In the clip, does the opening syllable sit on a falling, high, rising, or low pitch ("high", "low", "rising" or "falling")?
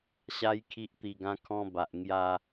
high